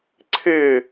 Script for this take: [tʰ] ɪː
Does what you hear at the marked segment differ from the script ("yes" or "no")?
yes